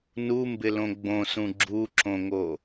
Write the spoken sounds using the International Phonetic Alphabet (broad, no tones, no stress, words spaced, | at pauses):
numbɪlõ ɡ͡bõsũ ɡ͡ǁuǁõŋo